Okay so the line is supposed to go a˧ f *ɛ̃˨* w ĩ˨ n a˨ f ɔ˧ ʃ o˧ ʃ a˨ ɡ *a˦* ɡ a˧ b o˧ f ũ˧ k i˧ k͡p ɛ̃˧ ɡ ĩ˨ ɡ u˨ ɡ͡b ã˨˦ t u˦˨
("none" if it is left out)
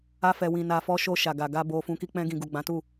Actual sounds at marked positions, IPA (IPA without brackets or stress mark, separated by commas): ɛ˨, a˨